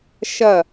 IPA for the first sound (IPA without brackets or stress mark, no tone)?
ʃ